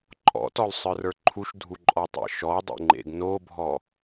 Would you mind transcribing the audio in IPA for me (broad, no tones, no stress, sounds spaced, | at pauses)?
ǃʼ ɔ̰ t ɔ l sˤ ə˞ r ə˞ ǃʰ u ʃ dʱ u ǃʼ ɔ tˤ ḛ ʃ ɔ dˤ ḛ ŋ͡ǃ ḛ ɡ n o bʱ ɔ